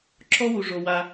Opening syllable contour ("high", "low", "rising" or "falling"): high